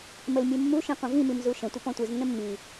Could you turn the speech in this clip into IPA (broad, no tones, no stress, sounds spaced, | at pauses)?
m ə l mʲ u mː u ʃ ĩ qʷ ə̃ v ĩ m i m z u ʃ ə̃ tʷ ə p ɔ̃ tʷ ɯ z nː ə̃ mː i